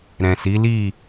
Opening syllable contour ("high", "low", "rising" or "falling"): low